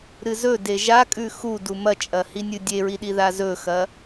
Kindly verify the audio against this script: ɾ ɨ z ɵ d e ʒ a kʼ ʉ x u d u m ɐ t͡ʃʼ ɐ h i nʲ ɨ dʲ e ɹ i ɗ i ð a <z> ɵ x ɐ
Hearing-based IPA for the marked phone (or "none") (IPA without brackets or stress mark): z